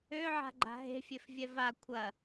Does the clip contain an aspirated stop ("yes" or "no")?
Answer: yes